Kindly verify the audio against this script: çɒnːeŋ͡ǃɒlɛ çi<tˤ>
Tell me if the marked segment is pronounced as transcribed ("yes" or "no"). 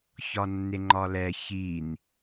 no